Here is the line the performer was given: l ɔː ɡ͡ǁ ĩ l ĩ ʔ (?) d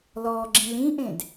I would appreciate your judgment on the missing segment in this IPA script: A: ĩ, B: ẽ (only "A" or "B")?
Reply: B